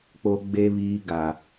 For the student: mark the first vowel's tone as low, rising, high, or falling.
low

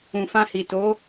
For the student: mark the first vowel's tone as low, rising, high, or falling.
low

